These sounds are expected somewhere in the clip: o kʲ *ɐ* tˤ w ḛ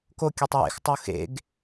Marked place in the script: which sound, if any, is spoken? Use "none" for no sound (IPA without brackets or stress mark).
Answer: ɐ